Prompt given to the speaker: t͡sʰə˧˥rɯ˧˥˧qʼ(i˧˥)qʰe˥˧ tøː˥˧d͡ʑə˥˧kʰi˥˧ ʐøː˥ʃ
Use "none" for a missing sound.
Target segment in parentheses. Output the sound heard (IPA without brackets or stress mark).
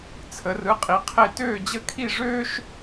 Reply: i˧˥